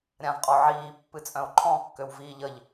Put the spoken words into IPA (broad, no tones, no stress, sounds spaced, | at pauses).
ɾʲ ã v qʼ ɔ ʕ iː pː ɨ t͡sʼ œ̃ o̯ ǃʰ ɔ̃ kː ø w v iː ʎ ə ʎ